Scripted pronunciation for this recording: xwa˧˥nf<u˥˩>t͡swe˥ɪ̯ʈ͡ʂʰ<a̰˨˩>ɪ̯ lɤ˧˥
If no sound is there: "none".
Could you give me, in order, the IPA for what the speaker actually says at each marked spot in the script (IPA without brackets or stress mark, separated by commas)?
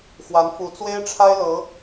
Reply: u˧˥, a˥